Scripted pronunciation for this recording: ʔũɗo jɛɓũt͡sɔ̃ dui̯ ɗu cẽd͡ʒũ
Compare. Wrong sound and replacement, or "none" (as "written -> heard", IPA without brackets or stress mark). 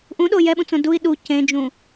ɔ̃ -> õ